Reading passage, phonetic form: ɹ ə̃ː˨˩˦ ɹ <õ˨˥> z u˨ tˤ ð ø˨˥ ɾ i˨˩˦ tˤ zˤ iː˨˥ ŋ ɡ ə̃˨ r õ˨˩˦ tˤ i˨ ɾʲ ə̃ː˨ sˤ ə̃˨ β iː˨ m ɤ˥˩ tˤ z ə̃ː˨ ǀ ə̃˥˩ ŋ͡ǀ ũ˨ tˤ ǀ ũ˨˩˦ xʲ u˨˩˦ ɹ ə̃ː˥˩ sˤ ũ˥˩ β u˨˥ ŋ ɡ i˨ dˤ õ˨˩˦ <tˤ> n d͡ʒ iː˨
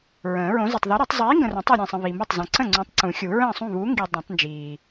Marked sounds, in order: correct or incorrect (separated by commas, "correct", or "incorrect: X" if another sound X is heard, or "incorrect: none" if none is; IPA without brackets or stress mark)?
correct, correct